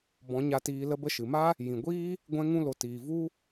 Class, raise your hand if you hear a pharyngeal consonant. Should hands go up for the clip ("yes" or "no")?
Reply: no